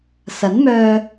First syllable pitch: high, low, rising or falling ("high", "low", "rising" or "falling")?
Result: rising